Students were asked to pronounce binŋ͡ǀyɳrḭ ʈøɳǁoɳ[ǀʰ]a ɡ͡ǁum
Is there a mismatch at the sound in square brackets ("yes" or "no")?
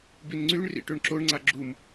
yes